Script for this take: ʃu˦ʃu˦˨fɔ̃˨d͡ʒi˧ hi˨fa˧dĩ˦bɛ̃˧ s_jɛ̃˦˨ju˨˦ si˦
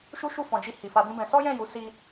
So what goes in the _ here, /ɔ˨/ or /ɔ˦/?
ɔ˦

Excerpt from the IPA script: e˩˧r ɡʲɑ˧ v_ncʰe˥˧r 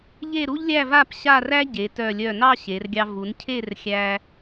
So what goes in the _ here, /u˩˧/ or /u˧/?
u˩˧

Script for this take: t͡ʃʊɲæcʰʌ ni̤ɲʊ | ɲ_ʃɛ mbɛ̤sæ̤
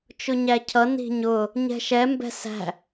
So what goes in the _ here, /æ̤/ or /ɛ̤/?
ɛ̤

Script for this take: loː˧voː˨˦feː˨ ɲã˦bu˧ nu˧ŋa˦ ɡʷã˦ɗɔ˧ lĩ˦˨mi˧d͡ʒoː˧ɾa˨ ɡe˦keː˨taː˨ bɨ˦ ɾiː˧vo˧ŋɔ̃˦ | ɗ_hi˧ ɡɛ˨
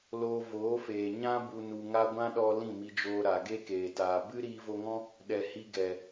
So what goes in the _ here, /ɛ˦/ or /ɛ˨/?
ɛ˨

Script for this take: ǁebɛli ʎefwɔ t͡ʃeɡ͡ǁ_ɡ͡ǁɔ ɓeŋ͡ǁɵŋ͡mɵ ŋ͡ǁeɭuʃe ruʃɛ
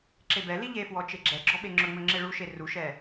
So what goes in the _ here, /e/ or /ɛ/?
ɛ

